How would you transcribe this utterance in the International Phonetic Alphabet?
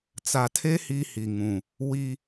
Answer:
t͡s a˨ tʰ e˦ h i˦ h i˨ ŋ ũ˨ | w i˦

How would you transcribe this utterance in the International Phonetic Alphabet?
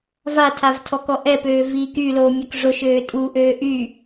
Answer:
v a tʰ a v tʰ ɔ k ɔ ʔ ɛ p øː v iː k y l oː mʲ ø k ʐ o ʃ øː tʼ u ʔ øː ʔ y

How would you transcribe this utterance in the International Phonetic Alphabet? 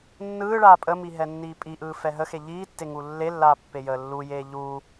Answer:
nː ɯː ɭ aː pʼ ə m i ɦ ɛ nː iː pʼ i ʔ ɯː f ɛ ɦ ə x e ʎ iː tː e ŋ u lː e lː aː pː e j əː lː u j eː ʎ uː

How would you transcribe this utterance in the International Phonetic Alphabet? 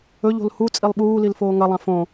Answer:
ɵ ʎ o̤ l h u t͡sʼ i lˠ ɓ uː l i l f oː ŋ ɐ lˠ ã f õ

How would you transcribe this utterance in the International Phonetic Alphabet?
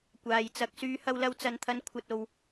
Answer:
kʷ aː˨ j t͡s ɐ˨˥ k̚ s yː˨˧ h ɐ˧ w l ɐ˧ w t͡s ɐ˨ n t̪ʰ ɐ˨˧ n kʷʰ ɐ˨ t̚ o˨ w

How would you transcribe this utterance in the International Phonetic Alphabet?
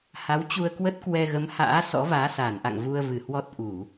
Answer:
h a˨˦ w t͡ɕ u˧ ə̯ k w ə˦˥ t̚ k w ɛ˧ ɣ ə˨˦ m h a̰ː˧˥ s ɔ̰˧˥ v aː˨˦ s aː˧˩ n ʔ a̰˧˨ ŋ v u˧ ə̯ v ɨ˧˩ h w ɔ˦˥ t̚ ʔ u˧˩˨

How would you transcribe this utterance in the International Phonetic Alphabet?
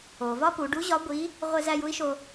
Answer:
o˩ v ɒ˥ p u˩˧ ɖ u˧˥ ʑ ɒ˧˥ ɡʷ i˧˥ | ʁʷ e˧ z æ˧ j u˥ i̯ ʃ o˧

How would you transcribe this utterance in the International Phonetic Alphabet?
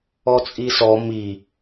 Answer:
ɔ t͡sʼ i s ɔ m i

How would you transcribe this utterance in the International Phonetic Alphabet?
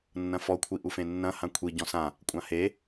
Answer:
nː ɐ̃ f ɔ kʷʰ i ʔ u f ẽ nː ɐ̃ h ã kʷʰ i ɟ ɔ̃ s ã | kʷʼ ã h e

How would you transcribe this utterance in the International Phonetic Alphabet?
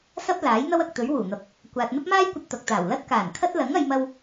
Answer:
s ɐ˥ p̚ l aː˨˥ j n̪ ɐ˥ w ɐ˨ k̚ t̪ ɵ˨˥ ɥ w uː˨˩ n̪ ɐ˨ p̚ | kʷ aː˨ t̚ n̪ ɐ˥ p̚ m aː˥ j kʷ ɐ˧ t̚ t̪ ɐ˨ k̚ t̪ aː˨˩ w l ɐ˥ t̚ k aː˨˩ n kʰ ɐ˥ t̚ l ɐ˨˥ ŋ ɐ˨˧ j m ɐ˧ w

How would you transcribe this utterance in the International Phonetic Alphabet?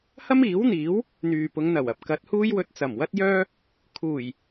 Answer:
h ɐ˥ m iː˨˥ w n̪ iː˨˥ w | n̪ yː˨ p ʊ˨˧ ŋ n̪ ɐ˨˩ w ɐ˨ p̚ k ɐ˨˥ t̚ h uː˥ j w ɵ˧ t̚ t͡s ɐ˨˩ m w ɐ˥ t̚ j œː˥ | kʰ uː˨˩ j

